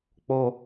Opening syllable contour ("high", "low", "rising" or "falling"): low